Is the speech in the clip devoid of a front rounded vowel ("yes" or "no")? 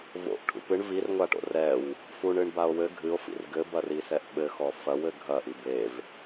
yes